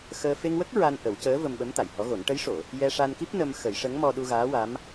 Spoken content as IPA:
x əː˧ f e˧ ŋ w ə˦˥ k̚ ɹ a˧ n ʔ ə˨˩˦ w c əː˧˥ v ə˧ m ɓ ə˧˥ m t̪ a˨˩˨ j h ɔ˧˥ ɣ o˨˩˦ n ʈ ə˧˥ j ʂ o˨˩˨ | j ɛ˧ ʂ a˧ n k i˦˥ p̚ n ə˧ m x ə˨˩˦ j ʂ ə˧˥ ŋ m ɔ˧ ɗ u˧ ɣ aː˧˥ w a˧˥ m

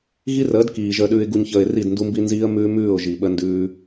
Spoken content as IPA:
ɣ i˦ r əː˨˦ d k iː˨ ʒ əː˨ ɗ ʉː˨ ɪ̯ ɡ u˨ ɲ ç əː˨ ɪ̯ r i˦˨ d n d u˦ m b i˦ n z iː˦ ə̯ m ʉː˦ m ʉː˦˨ ʊ̯ ʒ i˨ ɓ ə˦ n d ʉː˦

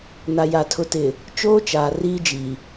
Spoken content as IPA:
n a˨ j a˨ tʰ ʊ˨ t ɪ˨ | t͡ʃ oː˦ t͡ʃ aː˨ r iː˦ d͡ʒ i˨

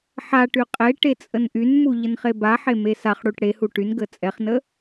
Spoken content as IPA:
ħ a ʈ y qʼ e ʈ e t͡sʼ ə n ʔ y n m u ʎ ə n χ e b a ħ e m e s a χ ɽ u ʈ ɽ e h u ʈ y n ɡ ə t͡sʼ ɛ χ n ə

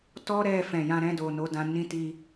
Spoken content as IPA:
t ɔ˦ ɾ ɛ˦˨ f ɛ̃˨ j ã˧ ɾ ɛ̃˧ d o˨ n o˨˦ d ã˧ n ĩ˦ t i˦

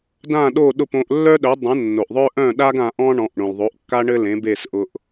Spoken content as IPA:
d ã˥˩ ɗ o˥˩ ɗ ʊ˥˩ p õ˧ ʔ lː œ˥ ɗ œ˩˥ dˤ œ̃˩˥ nː o˩ ʔ ðˤ œ˥ ʔ œ̃˥˩ ɗ a˥ ɡ ã˧ ʔ ɔ̃˥ ɳ ɔ̃˩˥ ʔ ɳ õ˩ l ðˤ o˩˥ ʔ kː a˥ ɳ ɘ˥ l ẽ˩˥ b e˥˩ s ʔ ʊ˧ ʔ

